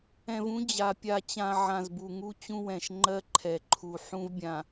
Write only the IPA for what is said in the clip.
ɛ̃˨vũ˦ d͡ʑa˨pʲa˦ t͡ɕã˨ ʕã˨zbu˨ŋu˦ t͡ɕũ˦wɛ̃˨ʃŋ͡ǃɜ˦ ǃʰɛ˨ǃʰu˨ ħũ˦vbʲã˨

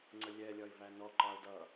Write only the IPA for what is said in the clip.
ŋ͡ǀəlʲɛ lʲɒɪ̯vænɔ ǃɑʊ̯dʌ

